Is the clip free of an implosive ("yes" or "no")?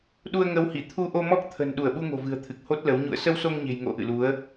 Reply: no